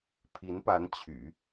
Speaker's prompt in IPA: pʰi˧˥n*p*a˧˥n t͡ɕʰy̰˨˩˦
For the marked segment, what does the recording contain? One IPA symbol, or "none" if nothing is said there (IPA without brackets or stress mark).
p